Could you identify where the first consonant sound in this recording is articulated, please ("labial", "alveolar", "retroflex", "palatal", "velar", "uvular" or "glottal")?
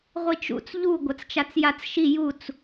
uvular